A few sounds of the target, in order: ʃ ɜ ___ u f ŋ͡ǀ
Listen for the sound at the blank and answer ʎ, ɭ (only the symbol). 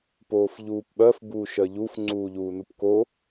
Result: ʎ